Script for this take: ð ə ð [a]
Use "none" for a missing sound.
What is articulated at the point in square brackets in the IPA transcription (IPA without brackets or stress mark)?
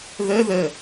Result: ə